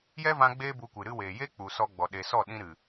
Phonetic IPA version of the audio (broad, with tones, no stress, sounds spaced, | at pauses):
j ɛ˦ v ã˧ ɡ͡b eː˦ b u˧ kʷ ɨ˨ ɾ ɨ˧ w eː˨ j e˦ k͡p u˨ s ɔ˧ ɡ͡b ɔ˨ ɗ e˨ s ɔ˦˨ ɗ ĩ˧ ɾ ɨ˨